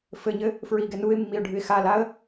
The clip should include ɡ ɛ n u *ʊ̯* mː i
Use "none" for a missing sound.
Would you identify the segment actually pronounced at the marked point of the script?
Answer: ɪ̯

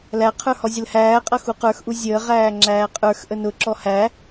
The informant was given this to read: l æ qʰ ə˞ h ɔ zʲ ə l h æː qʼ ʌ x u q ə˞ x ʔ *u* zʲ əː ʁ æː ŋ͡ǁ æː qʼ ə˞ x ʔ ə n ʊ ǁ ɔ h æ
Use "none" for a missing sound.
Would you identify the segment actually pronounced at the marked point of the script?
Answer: u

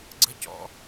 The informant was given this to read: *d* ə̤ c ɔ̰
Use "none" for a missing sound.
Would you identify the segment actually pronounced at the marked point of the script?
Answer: ɡ͡ǀ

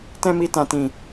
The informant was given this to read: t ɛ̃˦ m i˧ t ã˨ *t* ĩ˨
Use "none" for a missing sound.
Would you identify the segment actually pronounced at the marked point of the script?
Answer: t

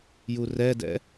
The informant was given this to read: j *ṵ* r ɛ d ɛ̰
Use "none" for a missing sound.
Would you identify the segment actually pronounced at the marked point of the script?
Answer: u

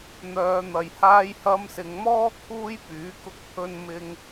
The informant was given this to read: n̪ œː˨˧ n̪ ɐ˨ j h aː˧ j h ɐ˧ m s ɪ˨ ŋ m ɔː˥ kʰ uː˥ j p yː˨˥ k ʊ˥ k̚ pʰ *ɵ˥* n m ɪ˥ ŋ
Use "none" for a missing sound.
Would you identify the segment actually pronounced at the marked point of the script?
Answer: ɵ˥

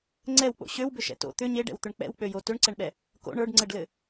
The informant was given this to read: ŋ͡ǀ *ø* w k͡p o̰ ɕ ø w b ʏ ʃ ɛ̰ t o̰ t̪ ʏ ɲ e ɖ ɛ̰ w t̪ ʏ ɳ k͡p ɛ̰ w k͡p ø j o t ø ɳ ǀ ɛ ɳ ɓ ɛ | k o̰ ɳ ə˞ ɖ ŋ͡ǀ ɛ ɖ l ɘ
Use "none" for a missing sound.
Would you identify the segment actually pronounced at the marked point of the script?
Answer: ɛ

